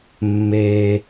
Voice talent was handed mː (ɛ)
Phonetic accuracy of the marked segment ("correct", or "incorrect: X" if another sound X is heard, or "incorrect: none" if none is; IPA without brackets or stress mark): incorrect: e